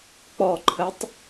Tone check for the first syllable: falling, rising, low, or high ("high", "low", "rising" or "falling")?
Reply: low